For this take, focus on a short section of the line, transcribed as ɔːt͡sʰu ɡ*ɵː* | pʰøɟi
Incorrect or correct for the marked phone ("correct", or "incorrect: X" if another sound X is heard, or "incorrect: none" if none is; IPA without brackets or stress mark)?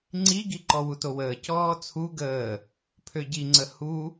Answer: incorrect: əː